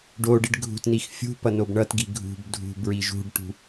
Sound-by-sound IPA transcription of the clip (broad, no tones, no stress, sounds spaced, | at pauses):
ɖ o ɖ i ɖ ɡʱ ṳ t n i x fʲ ṳ p ʌ n o b ɳ ʌ t ɡ i ɡʱ ṳ b dʱ ṳ b ɹ i ʒ ṳ ɖ ʈ ṳ